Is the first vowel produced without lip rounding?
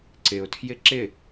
yes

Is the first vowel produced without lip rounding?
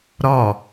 no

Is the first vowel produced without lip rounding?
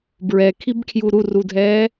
yes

